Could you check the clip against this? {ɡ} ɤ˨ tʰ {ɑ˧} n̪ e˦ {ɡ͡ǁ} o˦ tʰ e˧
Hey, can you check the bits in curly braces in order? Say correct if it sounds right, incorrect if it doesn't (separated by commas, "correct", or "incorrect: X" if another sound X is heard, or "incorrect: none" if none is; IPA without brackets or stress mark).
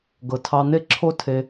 correct, correct, incorrect: ǁʰ